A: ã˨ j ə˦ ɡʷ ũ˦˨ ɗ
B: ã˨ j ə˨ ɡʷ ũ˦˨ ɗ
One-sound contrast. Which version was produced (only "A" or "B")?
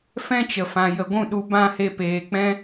B